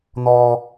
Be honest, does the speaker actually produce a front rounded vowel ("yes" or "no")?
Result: no